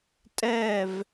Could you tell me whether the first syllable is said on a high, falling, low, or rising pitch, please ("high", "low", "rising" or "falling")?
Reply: falling